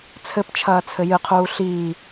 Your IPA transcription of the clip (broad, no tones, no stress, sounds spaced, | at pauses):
t͡sʰ ɘ p t͡ʃʰ ɐː t͡sʰ ɘ j ɨ qʰ uː ɬ iː